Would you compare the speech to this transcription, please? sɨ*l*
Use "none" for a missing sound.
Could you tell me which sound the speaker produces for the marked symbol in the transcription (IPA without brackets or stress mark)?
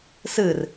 r